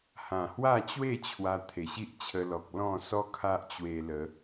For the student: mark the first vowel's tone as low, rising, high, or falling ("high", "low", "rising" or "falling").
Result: low